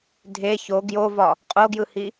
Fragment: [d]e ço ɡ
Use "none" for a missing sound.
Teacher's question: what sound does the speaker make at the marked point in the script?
dʱ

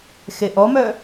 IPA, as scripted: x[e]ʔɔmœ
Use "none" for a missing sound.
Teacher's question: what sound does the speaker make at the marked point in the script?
e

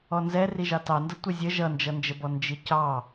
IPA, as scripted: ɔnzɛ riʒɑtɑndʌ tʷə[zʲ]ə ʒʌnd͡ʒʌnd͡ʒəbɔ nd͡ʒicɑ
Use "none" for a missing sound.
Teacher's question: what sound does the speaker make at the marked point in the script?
zʲ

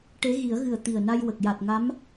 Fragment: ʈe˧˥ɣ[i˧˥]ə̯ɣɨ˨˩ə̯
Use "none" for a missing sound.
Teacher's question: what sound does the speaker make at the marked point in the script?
i˨˩˦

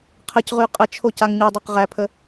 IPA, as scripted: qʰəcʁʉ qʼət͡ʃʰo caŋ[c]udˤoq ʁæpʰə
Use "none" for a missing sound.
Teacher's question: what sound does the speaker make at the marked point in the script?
ɲ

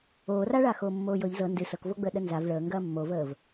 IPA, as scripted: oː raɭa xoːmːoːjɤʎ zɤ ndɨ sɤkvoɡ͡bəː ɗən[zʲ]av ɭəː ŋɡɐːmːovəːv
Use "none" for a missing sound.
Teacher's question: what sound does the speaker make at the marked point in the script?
z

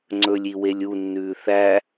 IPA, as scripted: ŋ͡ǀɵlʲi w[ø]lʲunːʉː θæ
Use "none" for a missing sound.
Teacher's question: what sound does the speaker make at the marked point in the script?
e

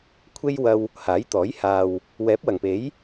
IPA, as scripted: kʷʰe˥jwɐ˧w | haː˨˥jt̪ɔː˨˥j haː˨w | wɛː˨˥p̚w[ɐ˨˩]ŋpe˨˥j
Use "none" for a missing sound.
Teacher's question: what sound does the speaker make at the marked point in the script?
ɐ˨˩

